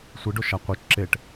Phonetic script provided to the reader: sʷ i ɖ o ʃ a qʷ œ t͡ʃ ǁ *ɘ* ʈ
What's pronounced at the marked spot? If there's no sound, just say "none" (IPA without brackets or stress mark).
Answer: e